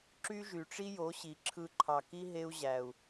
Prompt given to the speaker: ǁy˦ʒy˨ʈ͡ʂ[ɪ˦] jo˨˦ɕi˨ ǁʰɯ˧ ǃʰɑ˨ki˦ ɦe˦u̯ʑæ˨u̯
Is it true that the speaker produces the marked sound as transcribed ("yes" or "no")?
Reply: no